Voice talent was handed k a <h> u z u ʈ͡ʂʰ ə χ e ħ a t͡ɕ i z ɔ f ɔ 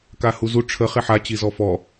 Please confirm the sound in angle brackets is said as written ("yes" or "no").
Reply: yes